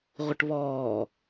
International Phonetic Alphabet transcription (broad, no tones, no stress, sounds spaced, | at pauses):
ʁʷ ə ʈ β ɔː